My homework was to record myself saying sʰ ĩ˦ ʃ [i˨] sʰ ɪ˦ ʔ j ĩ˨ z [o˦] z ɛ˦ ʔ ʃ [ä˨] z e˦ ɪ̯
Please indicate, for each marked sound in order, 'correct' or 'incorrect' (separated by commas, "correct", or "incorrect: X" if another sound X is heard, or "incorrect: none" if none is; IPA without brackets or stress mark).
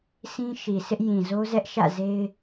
correct, correct, incorrect: ä̰˦˨